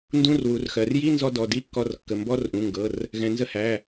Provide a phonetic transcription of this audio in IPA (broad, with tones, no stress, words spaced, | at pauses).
ndũ˧˥˧rwu˩˧rxɜ˩˧r ji˧˥˧nzɔ˧ dɔ˩˧˩di˧˥˧kːɔ˧r kːə˩˧˩mbɔ˧˥˧rʔũ˩˧˩ŋɡɤ˩˧˩r | ɣɛ̃˩˧nzə˧hæ˩˧˩